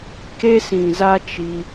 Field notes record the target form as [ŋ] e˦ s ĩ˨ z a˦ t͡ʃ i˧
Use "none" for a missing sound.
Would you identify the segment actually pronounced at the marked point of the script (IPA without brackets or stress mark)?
k